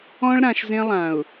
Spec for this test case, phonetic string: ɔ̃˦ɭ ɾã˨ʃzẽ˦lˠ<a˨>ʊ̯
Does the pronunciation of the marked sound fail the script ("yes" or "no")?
yes